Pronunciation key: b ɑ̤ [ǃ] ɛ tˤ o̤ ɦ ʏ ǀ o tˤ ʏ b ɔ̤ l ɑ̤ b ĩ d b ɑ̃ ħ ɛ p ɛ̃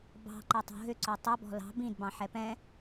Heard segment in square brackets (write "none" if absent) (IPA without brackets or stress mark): ǃ